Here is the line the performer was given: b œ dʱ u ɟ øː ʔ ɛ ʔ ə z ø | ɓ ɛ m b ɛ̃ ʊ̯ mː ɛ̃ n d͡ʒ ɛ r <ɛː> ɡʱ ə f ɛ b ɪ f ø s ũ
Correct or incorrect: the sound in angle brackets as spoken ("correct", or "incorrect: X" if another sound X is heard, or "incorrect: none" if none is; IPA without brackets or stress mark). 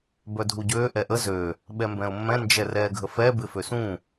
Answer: correct